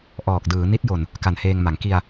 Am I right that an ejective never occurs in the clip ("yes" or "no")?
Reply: yes